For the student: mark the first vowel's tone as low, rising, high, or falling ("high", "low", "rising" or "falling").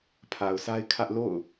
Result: low